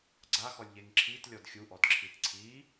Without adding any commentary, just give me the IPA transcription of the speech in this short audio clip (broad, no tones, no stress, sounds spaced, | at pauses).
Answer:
ɡ͡ǀ a x ɔ lʲ ʎ e ŋ ǁʰ i t lʲ ɔ d xʲ u ʔ ɔ d ǁʰ i t ǀʰ i